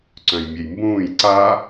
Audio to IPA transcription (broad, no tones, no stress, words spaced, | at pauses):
ǀœ̃jmʲejmbũːj ǀa